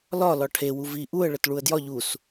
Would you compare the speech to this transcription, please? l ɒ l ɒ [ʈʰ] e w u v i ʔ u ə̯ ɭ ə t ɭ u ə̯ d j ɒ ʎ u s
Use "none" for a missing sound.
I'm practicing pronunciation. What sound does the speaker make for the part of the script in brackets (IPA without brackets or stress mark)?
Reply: ʈʰ